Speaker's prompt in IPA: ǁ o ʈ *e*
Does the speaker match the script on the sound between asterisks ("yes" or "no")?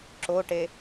yes